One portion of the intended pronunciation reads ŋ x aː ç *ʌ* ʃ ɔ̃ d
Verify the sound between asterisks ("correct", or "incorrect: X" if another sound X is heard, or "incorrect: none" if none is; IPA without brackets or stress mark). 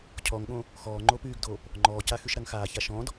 incorrect: a